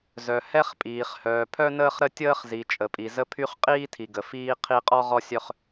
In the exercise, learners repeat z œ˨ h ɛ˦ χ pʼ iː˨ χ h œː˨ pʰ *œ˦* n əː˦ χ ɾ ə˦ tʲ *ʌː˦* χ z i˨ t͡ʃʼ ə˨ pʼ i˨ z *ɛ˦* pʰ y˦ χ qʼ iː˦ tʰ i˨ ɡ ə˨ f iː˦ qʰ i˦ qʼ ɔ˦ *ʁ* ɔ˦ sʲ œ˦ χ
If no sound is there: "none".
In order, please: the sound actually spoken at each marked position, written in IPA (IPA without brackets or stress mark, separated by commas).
œ˦, əː˦, ə˦, ʁ